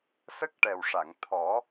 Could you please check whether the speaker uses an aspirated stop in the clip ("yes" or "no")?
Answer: yes